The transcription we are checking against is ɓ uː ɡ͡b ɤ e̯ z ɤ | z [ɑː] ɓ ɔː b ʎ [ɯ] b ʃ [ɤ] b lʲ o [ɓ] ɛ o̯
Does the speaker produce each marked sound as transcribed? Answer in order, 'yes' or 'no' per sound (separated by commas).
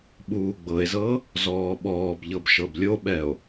no, no, yes, yes